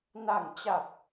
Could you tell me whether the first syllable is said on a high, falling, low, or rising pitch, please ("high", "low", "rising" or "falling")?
low